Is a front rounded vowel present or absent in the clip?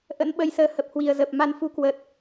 absent